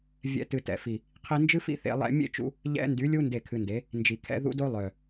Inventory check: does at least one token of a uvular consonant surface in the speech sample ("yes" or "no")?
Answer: yes